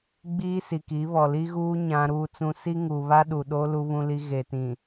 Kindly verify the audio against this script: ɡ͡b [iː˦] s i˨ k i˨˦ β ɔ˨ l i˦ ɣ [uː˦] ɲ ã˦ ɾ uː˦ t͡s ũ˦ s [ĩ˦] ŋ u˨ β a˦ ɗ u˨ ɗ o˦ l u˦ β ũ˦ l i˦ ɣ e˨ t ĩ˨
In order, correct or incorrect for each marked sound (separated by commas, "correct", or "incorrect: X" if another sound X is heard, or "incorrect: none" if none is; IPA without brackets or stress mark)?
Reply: correct, correct, incorrect: i˦